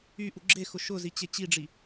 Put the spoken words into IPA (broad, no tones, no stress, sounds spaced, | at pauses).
y ʔ u ɡ͡ǁ e x ʊ ʃ ʊ z i t͡ɕ e t͡ɕ i ɖ͡ʐ i